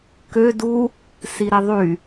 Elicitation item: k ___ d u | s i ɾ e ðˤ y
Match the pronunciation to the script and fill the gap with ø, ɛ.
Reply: ø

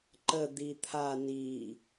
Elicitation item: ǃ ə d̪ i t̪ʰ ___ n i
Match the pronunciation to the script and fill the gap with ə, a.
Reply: a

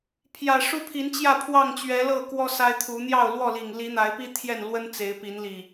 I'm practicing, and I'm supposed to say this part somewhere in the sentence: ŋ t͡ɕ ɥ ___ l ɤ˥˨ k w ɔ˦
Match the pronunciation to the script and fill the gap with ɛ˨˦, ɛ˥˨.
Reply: ɛ˨˦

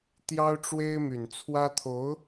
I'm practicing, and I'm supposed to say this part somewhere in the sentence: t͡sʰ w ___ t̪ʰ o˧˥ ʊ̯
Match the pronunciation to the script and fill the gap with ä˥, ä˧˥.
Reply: ä˥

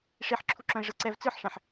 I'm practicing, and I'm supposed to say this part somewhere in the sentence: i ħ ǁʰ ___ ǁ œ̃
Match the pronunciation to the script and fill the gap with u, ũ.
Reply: u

